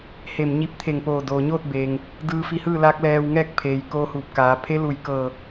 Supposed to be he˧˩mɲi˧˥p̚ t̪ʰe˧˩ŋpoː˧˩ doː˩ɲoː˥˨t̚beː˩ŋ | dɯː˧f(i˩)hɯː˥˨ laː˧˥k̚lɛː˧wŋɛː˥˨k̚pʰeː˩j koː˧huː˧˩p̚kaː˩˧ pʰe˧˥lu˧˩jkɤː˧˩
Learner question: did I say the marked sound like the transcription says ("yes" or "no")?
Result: no